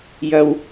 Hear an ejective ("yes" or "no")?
no